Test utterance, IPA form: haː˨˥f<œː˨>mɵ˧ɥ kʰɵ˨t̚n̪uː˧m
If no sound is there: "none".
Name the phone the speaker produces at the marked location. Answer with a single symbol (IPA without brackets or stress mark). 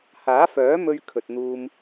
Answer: œː˨˥